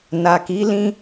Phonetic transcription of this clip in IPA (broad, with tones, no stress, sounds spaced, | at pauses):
n a˨ k i˨˦ l ĩ˦